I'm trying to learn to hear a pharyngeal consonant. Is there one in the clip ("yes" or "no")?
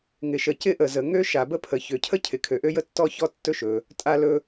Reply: no